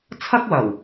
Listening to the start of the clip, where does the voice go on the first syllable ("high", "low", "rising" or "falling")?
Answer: high